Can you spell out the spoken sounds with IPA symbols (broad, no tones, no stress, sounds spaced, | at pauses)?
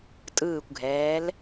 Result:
tʼ ɯː kʷ ɡʱ ɛː l